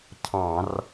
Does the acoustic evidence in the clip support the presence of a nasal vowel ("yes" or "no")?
yes